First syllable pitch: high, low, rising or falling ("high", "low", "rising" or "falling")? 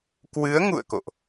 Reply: rising